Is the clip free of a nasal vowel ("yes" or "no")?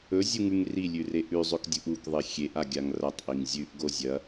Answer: yes